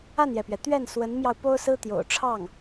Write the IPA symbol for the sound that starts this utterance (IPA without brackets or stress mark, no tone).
a